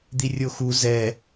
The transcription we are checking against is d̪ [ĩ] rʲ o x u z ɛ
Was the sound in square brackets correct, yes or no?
no